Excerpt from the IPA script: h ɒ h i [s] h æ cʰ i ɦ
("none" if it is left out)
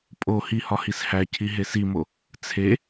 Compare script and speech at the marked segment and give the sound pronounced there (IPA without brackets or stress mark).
s